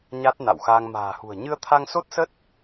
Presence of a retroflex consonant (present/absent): absent